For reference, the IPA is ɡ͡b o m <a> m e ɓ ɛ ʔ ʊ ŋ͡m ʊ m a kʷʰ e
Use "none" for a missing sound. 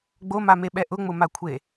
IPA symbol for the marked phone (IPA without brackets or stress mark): a